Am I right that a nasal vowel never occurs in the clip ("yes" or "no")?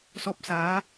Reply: yes